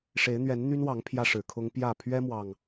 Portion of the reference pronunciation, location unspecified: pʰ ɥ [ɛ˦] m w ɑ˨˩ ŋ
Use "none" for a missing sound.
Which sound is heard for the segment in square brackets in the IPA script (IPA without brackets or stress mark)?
ɛ˦